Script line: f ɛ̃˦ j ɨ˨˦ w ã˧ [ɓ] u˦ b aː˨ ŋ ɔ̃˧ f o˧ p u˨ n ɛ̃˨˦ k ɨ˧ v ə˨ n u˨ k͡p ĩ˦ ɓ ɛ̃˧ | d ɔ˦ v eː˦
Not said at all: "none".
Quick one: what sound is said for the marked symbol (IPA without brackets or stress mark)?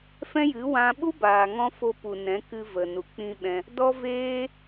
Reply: ɓ